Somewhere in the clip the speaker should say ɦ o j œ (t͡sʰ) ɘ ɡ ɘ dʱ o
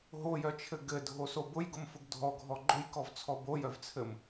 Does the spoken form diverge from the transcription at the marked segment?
yes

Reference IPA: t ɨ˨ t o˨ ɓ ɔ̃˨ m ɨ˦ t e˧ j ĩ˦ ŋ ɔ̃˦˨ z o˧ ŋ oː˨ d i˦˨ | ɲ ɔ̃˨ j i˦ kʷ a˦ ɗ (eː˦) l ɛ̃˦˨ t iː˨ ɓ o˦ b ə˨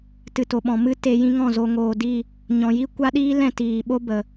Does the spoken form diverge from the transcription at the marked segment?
yes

